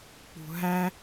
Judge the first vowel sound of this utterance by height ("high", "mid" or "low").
high